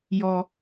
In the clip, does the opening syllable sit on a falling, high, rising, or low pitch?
high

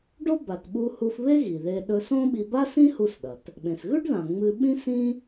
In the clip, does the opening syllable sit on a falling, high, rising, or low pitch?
high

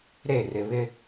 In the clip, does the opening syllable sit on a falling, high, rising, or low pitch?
falling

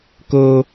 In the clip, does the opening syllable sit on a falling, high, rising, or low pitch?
high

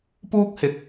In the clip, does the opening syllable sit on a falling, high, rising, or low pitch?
high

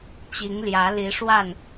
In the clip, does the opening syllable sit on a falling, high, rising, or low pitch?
rising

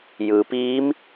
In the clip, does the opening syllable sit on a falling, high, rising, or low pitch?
low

